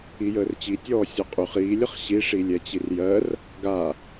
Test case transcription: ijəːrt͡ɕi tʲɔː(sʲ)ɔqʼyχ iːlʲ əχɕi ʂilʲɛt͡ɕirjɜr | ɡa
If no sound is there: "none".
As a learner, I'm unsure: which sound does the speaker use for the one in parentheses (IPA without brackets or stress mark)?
sʲ